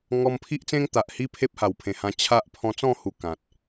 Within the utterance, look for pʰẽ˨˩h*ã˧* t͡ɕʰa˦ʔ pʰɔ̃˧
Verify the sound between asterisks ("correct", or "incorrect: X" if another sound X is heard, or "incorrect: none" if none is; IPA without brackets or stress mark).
correct